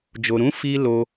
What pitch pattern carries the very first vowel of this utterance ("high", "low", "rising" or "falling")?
low